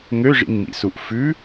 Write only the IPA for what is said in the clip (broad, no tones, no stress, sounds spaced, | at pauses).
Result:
ŋ ø ʐ ḭ ŋ m ḭ s u ʔ f ʉ